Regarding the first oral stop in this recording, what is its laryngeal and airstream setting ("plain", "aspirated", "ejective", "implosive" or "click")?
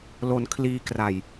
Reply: aspirated